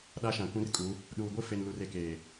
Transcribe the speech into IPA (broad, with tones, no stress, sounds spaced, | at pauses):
ɗ a˦ ʃ ã˨ kʷ ĩ˦ r kʼ u˨˦ | ɗ uː˨ ɡʷ ɪ˦ f e˨ n l u˨ r e˨ k eː˨